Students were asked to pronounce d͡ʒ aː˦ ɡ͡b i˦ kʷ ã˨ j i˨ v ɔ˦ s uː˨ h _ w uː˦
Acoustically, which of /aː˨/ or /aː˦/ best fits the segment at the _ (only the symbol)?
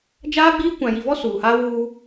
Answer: aː˦